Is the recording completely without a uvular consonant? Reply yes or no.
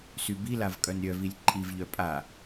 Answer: yes